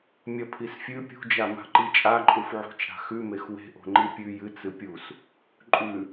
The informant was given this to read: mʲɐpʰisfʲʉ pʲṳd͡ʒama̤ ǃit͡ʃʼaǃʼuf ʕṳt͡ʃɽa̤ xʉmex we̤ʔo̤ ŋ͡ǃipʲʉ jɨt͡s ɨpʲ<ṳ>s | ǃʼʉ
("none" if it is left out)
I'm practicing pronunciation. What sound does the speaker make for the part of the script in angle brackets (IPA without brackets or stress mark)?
u